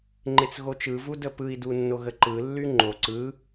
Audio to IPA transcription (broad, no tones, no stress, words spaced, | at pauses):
ŋ͡ǃet͡sɣot͡ʃɯvu dəpɯi̯du nːoɣəǃɯlːy ŋ͡ǃo ǀɯ